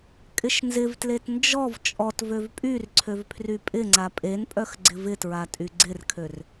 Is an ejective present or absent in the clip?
present